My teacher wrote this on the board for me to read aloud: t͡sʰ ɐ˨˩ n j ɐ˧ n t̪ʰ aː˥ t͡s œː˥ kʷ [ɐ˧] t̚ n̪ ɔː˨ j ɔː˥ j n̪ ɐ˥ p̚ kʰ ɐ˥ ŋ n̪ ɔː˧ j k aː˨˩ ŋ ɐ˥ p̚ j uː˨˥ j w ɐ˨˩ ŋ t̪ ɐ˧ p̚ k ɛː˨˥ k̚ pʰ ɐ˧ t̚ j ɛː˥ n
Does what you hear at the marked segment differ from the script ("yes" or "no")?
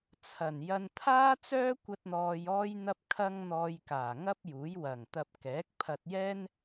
no